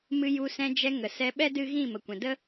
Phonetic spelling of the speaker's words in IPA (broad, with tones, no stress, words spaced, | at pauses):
mɨ˧ju˧ sɛ̃˧d͡ʒɛ˧ ŋə˨sɛ˧ɓɛ˦ dɨ˦ ɣĩ˦˨ mə˨kʷɛ̃˨də˦